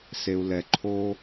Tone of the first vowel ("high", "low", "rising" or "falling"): low